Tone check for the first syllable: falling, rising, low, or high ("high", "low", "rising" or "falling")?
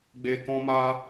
low